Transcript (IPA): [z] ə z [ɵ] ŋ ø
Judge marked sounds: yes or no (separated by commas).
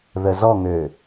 no, no